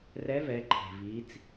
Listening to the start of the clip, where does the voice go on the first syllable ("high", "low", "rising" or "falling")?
rising